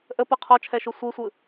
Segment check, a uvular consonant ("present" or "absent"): present